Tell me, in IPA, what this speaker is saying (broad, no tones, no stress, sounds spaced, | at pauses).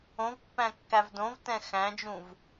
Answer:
õ v pː æ̃ kː æ v d õ v t ɛ̃ x æ̃ d͡ʒ ũ v